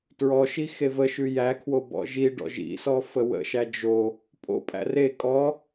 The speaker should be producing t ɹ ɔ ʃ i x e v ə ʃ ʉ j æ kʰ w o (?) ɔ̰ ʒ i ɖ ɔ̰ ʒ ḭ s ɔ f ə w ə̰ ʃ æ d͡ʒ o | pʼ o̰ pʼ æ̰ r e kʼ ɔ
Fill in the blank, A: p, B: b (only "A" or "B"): B